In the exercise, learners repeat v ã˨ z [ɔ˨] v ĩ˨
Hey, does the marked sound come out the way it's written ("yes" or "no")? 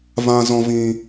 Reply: no